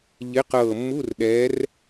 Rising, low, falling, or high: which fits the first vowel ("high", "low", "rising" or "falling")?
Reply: rising